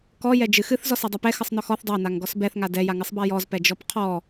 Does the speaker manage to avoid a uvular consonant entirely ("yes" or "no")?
no